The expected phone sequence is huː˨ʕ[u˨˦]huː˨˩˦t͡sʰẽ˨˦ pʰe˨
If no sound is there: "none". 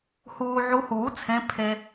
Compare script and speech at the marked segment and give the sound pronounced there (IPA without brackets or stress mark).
u˨˦